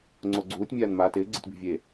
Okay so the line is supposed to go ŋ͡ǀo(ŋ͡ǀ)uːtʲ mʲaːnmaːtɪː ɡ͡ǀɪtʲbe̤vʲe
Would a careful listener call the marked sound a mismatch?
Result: yes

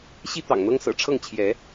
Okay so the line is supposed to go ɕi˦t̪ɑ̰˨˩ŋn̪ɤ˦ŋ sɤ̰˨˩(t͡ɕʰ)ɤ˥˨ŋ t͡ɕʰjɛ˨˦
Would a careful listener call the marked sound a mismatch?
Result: yes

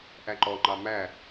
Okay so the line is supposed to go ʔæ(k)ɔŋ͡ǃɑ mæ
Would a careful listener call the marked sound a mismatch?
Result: yes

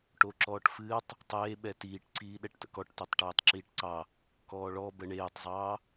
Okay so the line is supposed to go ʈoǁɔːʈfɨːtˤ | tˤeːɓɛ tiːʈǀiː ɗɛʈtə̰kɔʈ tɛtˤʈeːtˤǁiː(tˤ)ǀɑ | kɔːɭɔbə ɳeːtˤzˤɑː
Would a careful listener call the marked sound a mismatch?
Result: yes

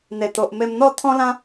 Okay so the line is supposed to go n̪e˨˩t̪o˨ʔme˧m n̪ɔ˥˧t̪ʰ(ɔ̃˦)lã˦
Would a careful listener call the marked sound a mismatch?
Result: no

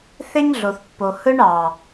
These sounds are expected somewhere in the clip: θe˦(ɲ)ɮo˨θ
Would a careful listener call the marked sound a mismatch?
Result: no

